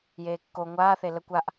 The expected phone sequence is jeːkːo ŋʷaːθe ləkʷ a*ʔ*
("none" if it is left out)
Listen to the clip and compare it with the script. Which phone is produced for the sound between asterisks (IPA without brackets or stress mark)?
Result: ʔ